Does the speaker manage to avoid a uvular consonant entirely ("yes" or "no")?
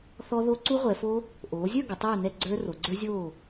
no